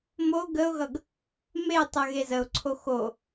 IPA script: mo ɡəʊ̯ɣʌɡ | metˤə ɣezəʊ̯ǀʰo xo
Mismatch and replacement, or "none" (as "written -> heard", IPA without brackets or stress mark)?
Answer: none